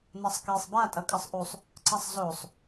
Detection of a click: present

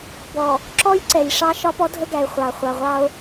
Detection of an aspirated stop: absent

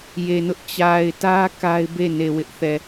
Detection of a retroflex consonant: absent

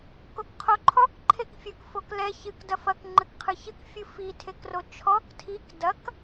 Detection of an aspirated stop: present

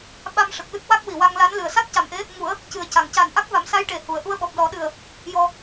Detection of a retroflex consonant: present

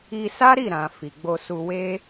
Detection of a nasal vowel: present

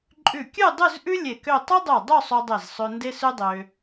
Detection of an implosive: absent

